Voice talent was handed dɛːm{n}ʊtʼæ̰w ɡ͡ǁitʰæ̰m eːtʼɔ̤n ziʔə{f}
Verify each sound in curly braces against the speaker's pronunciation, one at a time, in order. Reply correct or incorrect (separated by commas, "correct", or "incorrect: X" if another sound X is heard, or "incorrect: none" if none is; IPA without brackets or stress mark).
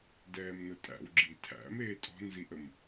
correct, incorrect: m